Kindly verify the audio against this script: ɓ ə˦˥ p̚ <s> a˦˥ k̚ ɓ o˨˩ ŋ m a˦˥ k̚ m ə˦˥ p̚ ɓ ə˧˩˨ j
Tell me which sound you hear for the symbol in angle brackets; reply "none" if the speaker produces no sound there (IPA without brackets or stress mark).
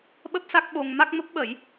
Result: s